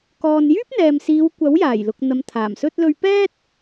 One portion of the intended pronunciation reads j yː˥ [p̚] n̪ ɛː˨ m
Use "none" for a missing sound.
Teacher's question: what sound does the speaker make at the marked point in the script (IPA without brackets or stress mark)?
p̚